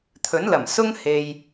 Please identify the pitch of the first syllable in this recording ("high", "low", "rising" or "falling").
rising